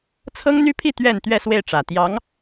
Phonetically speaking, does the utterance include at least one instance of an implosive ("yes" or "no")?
no